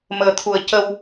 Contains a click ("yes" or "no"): no